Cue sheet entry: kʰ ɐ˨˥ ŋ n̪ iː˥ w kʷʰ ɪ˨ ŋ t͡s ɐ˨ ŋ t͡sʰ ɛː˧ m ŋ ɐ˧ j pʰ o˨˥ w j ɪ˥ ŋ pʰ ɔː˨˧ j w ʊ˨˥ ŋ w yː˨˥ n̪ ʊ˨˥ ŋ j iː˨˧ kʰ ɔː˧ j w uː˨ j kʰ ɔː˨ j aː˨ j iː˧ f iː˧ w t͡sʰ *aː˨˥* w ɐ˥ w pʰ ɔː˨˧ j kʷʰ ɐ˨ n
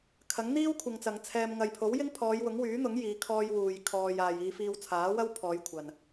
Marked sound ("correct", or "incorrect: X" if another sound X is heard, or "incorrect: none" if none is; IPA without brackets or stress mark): correct